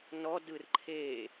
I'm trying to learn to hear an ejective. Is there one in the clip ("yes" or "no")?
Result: no